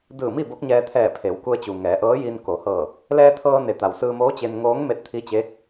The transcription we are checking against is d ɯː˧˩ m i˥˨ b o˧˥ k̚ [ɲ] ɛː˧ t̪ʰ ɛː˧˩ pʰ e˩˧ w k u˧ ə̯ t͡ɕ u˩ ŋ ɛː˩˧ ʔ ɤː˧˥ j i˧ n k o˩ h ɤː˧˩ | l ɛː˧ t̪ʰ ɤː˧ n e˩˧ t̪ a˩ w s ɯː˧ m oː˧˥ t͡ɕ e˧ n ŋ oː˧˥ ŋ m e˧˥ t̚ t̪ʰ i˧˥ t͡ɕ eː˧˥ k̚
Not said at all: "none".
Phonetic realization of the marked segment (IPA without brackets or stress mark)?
ɲ